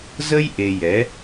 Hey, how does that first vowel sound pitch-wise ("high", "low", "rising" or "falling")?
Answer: high